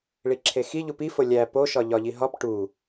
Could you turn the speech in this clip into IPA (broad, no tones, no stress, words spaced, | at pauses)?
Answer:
ɭiǁʰexi ʎupifo lʲæ poʃɒ ʎɒʎiɦɒp ʈu